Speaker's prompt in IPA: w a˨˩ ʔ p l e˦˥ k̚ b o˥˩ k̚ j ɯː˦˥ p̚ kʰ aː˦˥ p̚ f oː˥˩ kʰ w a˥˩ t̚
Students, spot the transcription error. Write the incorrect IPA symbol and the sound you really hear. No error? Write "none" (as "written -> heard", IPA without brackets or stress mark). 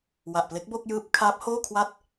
f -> h